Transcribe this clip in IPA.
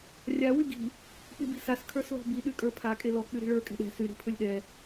rʲa wyɡi̤ | pibi̤sas kʰə˞slɔ̤bi ɗykʼə˞pʰa kʼelɔ k͡pyɾi̤ɭə˞ kʼɛ̤ɗɛ̤ sy ɾi̤pʰɵlʲɗɛ

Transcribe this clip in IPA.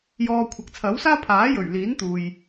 jɔː˨ kʷʰɐ˨k̚t͡sʰɐ˨˥wsaː˥ pʰaː˨˥ jɵ˨˩ɥliː˨˥nt̪uː˨j

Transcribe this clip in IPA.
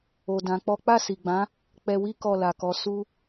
o˨ dã˧k͡pɔ˦ k͡pa˦˨si˨ɡ͡bã˨˦ | k͡pɛ˧wi˦ kɔ˦˨la˨kɔ˨˦ su˦

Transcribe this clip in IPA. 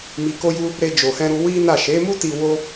mi˧ko˦ju˦ | ɾe˧d͡ʒo˨hɛ̃˧ɾu˧ wi˦na˦˨ ʃe˨˦mu˦ti˧ wo˦

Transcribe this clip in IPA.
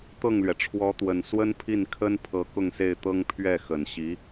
t̪ɤ˥˩ŋlɥɛ˩ʈ͡ʂʰwɔ˧˥t̪wə˨˩n swə˥npʰi˥˩nkʰə˥n pʰɤ˧˥kʊ˥˧ŋse˥˩ɪ̯t̪ɤ˥ŋ pʰɥɛ˥˩xə˨˩nɕi˧˥

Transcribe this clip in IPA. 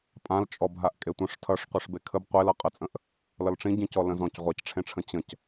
pʼãl t͡ʃʼɔbɦaʔkʼetʷə̃ʂ tʰʌʂqʷʌʂ bekʰəb qʷelʌ qʼət͡sʼə̃ʔ | lʌlʈ͡ʂĩɟĩcɔ lə̃zɔ̃c ʁʷacʈ͡ʂʰẽʈ͡ʂʰə̃ t͡ɕə̃c

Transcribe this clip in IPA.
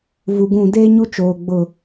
vu˨ɡũ˦˨ deː˦ɲu˦t͡ʃoː˨ ɡ͡bʊ˦˨

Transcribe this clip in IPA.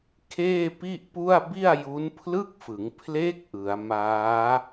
kʰeː˥˩pi˥˩ʔpu˥˩a̯ bi˥˩a̯ju˦˥npʰlɯ˥˩k̚fɯ˩˦ŋ pʰle˦˥k̚ ʔɯ˩˦a̯maː˦˥

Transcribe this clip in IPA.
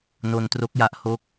no˧ntro˦˥k̚ja˦˥ʔ ho˦˥k̚

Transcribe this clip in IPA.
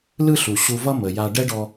lɯ˥ɬu˩ ɕu˧vʌ˥ mə˩ja˧ ɖɛ˥ɖɔ˧

